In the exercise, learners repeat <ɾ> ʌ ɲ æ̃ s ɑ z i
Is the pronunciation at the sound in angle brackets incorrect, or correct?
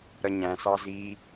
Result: correct